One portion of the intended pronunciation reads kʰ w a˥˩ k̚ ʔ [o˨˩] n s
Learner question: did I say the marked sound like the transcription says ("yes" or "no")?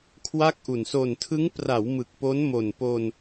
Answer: no